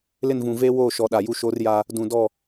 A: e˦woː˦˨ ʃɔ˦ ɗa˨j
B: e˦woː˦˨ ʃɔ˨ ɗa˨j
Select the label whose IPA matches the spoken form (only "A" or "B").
B